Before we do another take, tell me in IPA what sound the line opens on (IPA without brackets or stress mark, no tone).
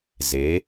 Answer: z